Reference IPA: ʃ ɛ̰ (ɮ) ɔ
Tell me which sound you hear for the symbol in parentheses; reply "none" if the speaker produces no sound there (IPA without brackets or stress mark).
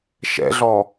ɮ